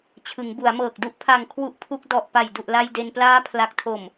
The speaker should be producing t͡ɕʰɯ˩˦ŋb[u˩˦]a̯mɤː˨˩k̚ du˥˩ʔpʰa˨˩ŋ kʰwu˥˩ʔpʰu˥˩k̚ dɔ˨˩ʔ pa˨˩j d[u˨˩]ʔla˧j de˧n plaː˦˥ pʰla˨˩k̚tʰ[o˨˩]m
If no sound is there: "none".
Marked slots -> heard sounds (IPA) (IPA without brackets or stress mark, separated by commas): u˩˦, u˨˩, o˨˩